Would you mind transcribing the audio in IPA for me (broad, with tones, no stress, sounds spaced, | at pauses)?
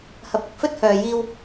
h ɐ˨ p̚ ɐ˨ k̚ f ɵ˥ t̚ h œː˨ j iː˧ w